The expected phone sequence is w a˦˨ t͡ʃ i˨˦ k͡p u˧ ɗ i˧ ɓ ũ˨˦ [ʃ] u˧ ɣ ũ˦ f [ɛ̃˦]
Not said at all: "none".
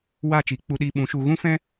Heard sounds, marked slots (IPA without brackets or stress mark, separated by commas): ʃ, ɛ̃˦